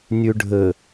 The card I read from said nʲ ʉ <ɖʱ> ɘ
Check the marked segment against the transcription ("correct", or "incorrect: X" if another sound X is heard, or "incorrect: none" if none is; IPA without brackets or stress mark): correct